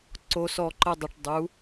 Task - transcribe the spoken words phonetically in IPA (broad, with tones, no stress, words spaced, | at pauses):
ǀo˧sɔ˧ǃə˧dˤə˨ʈ dˤu˨˦